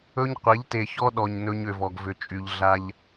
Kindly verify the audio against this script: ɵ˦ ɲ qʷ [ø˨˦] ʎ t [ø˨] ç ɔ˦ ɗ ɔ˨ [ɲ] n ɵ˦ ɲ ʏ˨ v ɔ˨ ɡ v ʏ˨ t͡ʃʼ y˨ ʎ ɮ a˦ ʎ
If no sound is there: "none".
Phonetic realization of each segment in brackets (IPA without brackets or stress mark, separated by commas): e˨˦, e˨, ɲ